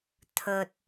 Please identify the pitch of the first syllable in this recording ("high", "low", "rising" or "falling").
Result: low